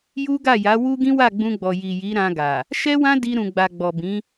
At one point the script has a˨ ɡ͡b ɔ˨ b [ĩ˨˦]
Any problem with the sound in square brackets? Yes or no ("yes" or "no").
no